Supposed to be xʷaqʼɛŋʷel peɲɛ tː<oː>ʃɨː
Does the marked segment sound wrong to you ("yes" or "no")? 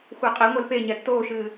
no